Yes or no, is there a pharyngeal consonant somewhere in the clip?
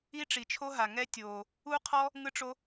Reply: no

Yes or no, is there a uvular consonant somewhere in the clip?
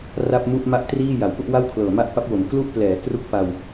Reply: no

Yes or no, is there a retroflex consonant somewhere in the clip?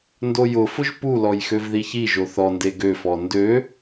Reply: no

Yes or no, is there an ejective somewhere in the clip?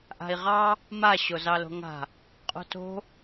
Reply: yes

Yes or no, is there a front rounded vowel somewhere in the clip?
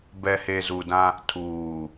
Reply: no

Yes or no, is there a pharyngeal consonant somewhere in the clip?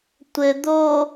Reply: no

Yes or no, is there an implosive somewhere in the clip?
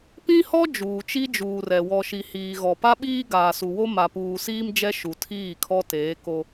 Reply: yes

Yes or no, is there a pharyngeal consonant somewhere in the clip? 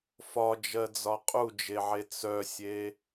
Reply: yes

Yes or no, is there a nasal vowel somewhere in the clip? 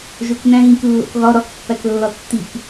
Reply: yes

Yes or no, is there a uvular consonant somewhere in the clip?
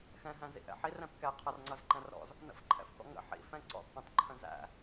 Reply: yes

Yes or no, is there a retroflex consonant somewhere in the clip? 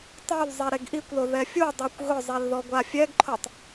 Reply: no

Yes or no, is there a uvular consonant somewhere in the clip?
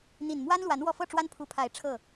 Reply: no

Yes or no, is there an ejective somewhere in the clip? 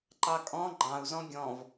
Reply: yes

